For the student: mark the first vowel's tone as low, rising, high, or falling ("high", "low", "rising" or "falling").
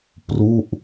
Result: falling